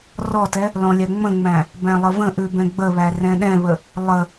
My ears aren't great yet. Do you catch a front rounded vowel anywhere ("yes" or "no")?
no